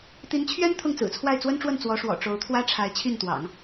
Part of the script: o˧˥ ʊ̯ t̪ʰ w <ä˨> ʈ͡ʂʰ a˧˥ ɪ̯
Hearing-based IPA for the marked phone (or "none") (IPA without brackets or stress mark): ä˥